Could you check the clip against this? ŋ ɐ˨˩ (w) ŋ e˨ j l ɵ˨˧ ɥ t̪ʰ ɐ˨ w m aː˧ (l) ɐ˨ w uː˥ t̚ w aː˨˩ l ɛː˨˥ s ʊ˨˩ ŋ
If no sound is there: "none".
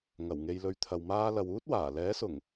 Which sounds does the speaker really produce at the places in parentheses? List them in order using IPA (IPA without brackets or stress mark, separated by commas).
w, l